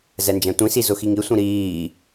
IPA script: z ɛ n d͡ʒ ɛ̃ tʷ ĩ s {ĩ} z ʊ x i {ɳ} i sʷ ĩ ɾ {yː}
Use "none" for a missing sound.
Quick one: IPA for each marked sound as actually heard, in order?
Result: i, ŋ, iː

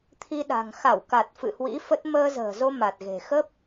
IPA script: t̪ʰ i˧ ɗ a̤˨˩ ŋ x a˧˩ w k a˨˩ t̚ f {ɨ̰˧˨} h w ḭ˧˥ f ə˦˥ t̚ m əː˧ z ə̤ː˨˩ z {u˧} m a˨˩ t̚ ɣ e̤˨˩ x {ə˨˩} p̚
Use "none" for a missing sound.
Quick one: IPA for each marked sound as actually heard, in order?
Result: ɨ̰˧˨, o˧, ə˦˥

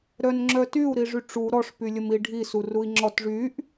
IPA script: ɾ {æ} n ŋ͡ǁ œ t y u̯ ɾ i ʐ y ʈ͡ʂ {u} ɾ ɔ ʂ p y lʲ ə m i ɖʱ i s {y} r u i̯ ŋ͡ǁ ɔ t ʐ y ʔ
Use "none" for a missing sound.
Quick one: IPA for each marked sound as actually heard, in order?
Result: œ, u, u

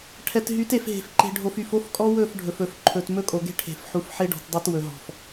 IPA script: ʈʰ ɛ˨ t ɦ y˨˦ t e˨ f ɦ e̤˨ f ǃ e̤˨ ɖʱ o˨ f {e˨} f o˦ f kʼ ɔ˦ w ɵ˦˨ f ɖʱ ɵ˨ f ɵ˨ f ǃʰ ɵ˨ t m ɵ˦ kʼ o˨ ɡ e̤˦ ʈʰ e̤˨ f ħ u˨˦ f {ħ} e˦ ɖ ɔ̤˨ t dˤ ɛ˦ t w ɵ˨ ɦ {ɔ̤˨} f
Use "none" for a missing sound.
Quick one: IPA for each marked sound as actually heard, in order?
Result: y˨, ħ, ɔ̤˨

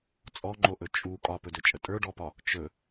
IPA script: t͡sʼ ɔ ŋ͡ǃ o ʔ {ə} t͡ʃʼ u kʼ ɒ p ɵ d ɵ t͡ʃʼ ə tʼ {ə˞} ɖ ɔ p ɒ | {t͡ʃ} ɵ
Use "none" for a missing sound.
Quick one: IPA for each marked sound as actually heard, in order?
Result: ɵ, ə˞, t͡ʃ

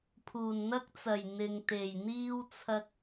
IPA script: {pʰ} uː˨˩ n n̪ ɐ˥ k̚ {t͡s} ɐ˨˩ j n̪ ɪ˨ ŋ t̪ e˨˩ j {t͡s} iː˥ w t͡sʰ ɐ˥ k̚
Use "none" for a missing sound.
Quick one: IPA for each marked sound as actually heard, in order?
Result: pʰ, t͡s, n̪

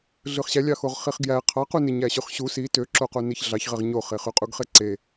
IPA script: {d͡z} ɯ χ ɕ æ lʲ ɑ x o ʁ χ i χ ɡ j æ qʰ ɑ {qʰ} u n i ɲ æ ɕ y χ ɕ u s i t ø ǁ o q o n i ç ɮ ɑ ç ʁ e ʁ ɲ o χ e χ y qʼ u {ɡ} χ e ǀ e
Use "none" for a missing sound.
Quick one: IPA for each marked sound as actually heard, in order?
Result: ɮ, q, ɡ

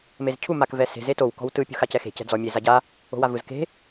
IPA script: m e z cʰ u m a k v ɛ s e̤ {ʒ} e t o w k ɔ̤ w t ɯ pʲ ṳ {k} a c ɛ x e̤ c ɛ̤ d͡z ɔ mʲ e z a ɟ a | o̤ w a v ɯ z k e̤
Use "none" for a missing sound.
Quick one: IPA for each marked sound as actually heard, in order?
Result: z, x

